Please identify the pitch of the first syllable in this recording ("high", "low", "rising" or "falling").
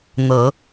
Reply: rising